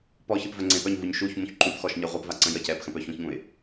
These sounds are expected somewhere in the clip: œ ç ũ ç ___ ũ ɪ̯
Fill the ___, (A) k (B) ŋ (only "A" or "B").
B